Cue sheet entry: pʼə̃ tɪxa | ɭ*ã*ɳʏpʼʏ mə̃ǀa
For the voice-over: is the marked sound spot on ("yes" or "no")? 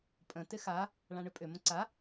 yes